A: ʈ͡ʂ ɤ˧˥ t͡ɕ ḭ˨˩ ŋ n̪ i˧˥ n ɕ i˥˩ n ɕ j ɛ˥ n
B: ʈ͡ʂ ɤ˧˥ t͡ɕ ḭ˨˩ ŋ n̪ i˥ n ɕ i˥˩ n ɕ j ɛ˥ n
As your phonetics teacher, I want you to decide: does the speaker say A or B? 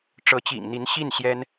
A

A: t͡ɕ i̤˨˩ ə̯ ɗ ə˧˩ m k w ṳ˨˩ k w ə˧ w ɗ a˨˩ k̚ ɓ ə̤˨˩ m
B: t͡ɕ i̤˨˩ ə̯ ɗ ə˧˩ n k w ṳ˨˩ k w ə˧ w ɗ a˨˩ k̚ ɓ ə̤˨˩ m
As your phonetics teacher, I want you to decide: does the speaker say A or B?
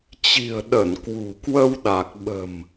B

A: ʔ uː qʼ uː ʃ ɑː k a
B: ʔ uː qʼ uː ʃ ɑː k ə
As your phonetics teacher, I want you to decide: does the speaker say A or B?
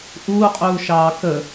B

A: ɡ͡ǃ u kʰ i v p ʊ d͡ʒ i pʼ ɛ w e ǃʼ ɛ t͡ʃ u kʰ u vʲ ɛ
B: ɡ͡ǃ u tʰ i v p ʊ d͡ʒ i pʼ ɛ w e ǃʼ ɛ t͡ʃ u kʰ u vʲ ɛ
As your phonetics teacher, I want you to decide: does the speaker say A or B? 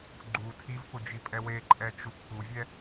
B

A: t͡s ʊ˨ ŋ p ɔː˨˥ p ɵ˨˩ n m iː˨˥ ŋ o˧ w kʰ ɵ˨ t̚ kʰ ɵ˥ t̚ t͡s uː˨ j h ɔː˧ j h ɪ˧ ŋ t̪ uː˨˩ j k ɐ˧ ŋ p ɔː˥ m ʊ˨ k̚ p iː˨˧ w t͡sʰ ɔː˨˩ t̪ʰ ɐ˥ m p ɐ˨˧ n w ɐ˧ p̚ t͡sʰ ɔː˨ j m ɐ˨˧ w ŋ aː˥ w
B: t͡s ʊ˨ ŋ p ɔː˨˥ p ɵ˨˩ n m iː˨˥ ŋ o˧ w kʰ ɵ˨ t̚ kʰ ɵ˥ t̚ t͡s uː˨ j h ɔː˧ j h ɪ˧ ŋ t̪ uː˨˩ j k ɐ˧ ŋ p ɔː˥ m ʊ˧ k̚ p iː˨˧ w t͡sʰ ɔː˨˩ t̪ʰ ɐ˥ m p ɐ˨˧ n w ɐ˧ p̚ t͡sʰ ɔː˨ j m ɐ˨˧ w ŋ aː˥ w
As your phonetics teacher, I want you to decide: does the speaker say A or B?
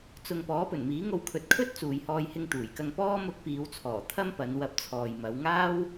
B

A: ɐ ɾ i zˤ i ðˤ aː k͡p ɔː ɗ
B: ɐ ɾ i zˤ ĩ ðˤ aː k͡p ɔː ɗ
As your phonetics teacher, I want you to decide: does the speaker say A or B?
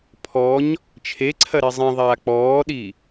B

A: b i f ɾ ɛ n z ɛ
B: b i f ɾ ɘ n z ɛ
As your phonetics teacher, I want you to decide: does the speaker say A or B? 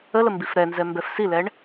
A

